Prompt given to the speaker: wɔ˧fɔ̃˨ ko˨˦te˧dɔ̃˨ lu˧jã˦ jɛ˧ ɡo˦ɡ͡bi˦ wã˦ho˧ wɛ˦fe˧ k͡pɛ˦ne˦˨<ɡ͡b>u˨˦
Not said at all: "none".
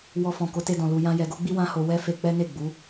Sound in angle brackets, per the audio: ɡ͡b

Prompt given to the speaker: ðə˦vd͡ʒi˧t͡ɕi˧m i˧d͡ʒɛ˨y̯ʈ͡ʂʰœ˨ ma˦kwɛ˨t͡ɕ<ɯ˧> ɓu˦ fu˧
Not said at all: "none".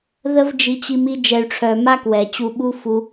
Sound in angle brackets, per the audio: u˧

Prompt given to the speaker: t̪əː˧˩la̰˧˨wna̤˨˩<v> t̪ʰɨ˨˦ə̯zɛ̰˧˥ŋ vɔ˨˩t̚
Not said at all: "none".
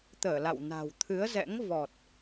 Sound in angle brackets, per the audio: w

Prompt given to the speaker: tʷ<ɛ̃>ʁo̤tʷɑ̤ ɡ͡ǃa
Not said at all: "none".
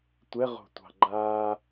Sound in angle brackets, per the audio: ɛ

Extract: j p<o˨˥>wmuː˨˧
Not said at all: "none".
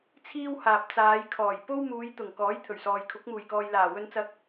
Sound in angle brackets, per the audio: o˥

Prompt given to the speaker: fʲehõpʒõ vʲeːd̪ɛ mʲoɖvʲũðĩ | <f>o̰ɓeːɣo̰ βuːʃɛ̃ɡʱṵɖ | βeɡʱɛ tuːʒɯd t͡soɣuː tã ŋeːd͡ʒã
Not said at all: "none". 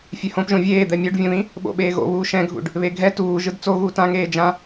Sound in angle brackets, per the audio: ɓ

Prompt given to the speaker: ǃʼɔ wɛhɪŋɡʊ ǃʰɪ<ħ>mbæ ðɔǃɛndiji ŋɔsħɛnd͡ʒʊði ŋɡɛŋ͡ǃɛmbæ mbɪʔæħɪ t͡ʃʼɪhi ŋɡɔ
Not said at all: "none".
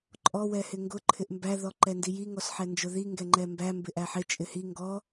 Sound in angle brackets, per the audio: ʔ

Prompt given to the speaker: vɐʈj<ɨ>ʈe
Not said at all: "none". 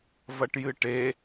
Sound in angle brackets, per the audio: ɨ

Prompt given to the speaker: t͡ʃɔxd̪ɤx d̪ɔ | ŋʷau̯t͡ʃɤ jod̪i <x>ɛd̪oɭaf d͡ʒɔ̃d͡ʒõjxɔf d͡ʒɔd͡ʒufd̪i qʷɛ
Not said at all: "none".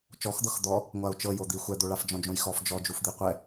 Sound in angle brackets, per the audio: xʷ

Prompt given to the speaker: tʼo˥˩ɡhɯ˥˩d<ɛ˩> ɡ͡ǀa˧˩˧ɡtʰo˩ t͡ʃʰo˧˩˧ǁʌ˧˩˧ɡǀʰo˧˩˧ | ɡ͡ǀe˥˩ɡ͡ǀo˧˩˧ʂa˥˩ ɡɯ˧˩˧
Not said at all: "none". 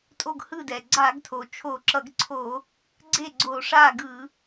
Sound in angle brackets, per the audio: ɛ˩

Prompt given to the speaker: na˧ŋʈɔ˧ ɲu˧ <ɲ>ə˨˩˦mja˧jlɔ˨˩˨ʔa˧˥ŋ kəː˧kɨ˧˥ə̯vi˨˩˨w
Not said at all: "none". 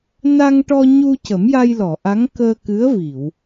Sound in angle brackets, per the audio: c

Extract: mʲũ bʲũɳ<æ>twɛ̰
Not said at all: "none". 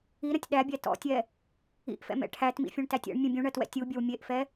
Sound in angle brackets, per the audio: ɜ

